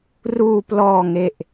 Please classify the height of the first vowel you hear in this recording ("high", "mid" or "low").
high